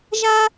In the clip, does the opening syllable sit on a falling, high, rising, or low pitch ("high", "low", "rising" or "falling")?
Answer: high